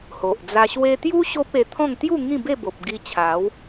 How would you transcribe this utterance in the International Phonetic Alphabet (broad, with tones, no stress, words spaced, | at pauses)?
ho˨ʔd͡za˧ ɕwe˧t̪ju˦ ɕo˦p̚e˧ t̪ʰɔ̃˥˧ŋ t̪ju˥˧ ŋĩ˥˧be˥˧bo˨p̚ ɡi˧t͡ɕʰa˨˦w